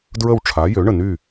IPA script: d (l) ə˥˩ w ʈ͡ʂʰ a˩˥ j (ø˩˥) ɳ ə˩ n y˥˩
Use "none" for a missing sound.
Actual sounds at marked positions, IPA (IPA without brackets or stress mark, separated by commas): ɹ, ø˩˥